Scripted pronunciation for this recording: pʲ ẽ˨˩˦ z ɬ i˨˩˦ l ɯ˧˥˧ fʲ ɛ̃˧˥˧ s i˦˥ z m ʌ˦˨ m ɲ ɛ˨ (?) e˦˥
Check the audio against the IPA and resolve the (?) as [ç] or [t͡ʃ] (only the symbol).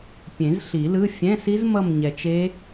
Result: t͡ʃ